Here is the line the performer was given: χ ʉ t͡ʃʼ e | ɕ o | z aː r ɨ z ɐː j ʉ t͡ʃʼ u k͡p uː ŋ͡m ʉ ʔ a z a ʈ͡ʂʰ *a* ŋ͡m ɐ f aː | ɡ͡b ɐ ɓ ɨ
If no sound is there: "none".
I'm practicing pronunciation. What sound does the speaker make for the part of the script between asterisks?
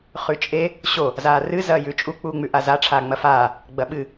aː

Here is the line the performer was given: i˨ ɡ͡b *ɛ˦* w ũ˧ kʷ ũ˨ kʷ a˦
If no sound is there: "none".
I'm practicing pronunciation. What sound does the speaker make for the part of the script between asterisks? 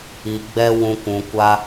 ɛ˦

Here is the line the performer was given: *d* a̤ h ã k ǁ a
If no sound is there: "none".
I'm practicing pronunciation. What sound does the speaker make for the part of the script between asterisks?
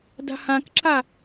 d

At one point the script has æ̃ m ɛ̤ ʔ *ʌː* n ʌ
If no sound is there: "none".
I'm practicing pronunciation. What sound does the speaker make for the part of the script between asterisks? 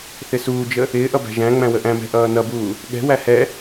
ʌː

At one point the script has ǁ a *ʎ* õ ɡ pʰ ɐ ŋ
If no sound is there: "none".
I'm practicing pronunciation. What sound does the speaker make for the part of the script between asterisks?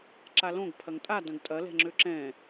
l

